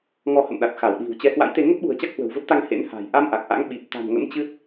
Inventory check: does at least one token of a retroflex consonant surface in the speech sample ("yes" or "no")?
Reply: no